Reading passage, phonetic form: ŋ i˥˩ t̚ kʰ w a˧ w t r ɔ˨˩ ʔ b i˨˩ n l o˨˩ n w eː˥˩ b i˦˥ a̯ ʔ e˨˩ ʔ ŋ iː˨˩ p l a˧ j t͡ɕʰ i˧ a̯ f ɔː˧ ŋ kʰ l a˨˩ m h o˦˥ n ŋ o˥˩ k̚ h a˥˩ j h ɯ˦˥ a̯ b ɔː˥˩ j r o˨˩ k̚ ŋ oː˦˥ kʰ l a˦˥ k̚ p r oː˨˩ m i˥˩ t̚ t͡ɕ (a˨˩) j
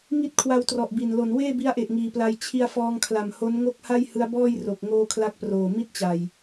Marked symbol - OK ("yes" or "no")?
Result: yes